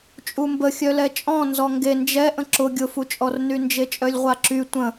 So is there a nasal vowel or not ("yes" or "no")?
yes